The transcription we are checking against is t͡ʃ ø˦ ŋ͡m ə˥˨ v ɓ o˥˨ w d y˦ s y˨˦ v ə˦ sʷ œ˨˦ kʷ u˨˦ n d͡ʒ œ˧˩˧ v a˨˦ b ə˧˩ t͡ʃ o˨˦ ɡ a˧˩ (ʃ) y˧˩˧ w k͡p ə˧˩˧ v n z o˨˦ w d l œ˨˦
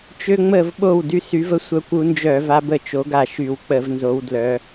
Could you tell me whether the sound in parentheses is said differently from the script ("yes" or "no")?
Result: no